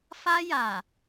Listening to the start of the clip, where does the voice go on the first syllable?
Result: high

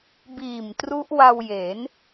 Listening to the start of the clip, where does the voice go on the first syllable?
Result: low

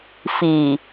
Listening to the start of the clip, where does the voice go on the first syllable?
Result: low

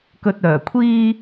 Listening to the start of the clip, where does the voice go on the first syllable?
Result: low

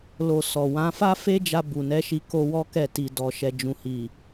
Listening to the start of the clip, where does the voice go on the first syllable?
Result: low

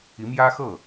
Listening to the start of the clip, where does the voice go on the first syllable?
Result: rising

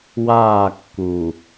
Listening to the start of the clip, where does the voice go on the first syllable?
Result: falling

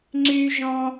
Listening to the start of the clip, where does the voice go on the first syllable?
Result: high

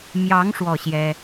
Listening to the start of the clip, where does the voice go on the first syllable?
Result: rising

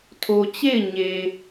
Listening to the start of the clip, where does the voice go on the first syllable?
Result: low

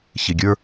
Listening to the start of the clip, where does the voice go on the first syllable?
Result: low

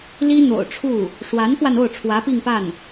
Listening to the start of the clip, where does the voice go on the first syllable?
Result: high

